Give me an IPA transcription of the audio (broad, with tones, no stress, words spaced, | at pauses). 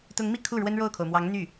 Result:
t̪ʊ˧˥ŋmi˥˧ kʰu˥˩ ɻwə˥nɻo˥˩ʊ̯kʰo˩ʊ̯mwɑ˧˥ŋ n̪y˥˩